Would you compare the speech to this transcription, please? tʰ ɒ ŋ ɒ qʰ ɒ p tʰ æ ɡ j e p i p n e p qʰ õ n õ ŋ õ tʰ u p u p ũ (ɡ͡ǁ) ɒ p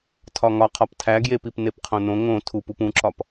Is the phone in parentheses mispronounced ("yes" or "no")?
yes